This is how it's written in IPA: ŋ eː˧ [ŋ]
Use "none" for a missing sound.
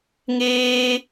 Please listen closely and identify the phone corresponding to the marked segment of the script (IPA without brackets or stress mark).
none